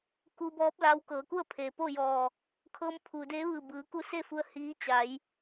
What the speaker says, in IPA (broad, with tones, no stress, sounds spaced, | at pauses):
k u˧ b ɔː˧˥ p̚ l a˧˥ w k ɤː˩˧ k u˥˨ ə̯ pʰ eː˩ p o˥˨ j ɔː˧˩ | kʰ ɤː˧ m pʰ uː˩ d eː˧˥ ʋ ɯː˧˩ b ɯː˩˧ k u˧˥ s e˥˨ f u˧ ə̯ h iː˧˥ t͡ɕ a˩˧ j